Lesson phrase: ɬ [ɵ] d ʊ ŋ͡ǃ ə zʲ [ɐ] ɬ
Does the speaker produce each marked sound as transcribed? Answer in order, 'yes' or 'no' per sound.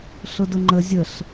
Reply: no, no

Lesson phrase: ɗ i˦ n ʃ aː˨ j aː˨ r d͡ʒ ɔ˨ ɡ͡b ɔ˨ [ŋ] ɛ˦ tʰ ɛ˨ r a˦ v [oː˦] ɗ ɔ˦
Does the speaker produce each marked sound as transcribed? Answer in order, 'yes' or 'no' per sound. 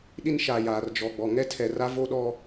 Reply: yes, no

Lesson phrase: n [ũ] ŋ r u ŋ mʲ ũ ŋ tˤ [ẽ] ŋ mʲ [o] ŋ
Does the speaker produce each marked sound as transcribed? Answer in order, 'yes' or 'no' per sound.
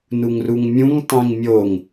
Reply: no, yes, yes

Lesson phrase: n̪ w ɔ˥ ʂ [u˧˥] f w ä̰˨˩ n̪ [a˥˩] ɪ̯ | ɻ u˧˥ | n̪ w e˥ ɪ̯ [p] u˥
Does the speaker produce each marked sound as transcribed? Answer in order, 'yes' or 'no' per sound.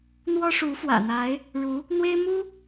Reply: yes, no, no

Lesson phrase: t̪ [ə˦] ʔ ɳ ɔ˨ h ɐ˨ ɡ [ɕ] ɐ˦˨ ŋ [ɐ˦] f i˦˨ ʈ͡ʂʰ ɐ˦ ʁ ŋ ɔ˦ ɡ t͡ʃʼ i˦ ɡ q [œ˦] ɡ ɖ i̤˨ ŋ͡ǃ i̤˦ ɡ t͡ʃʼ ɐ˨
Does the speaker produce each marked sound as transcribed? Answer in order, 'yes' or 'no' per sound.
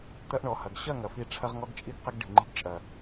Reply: no, yes, no, no

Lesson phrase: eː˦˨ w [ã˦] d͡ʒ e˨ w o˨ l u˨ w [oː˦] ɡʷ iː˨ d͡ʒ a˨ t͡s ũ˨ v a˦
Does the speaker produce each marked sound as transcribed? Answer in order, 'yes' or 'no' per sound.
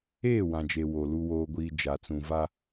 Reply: no, no

